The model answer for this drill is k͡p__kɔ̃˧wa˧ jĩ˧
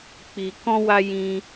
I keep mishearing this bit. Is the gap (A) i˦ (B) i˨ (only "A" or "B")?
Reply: B